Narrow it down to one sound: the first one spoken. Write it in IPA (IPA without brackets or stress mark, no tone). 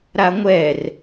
ɾ